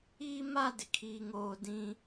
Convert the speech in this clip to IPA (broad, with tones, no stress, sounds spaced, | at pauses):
iː˦ m a˦ d ɪ˨ kʰ iː˦ ŋ oː˦ d ĩ˦